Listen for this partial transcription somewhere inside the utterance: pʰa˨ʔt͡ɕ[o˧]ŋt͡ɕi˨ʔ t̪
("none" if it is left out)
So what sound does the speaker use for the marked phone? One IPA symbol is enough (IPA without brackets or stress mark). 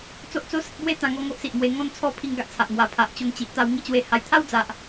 o˧